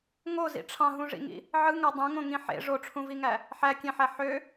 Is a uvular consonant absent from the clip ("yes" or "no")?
yes